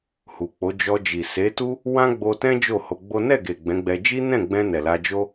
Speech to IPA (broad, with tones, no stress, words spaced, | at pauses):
hu˨k͡po˨˦ d͡ʒɔ˧d͡ʒi˨ se˨˦tu˦ | wã˦ɡ͡bo˧tɛ̃˦ d͡ʒo˦˨ho˧ɡ͡bo˦ nɛ˦˨ɡe˨ ɡ͡bɛ̃˨˦ɡ͡bɛ˧ d͡ʒi˦nɛ̃˦˨ɡ͡bɛ̃˧ nɛ˨la˧d͡ʒo˦